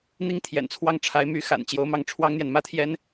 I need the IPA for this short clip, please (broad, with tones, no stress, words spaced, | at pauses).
n̪i˥˩ŋt̪ʰjɛ̰˨˩nt͡sʰwɑ˥˩ŋʈ͡ʂʰa˧˥ɪ̯ my˧˥ xa̰˨˩n t͡ɕjo˧˥ʊ̯mɑ˥˩ŋʈ͡ʂʰwɑ˥ŋn̪jɛ˨n mä˥t̪ʰjɛ˥n